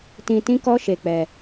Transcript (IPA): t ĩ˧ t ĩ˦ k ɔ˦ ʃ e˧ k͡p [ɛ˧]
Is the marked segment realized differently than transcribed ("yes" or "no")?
no